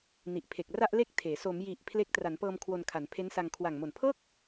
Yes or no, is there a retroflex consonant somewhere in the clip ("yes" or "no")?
no